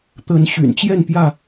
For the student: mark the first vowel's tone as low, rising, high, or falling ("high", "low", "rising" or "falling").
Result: rising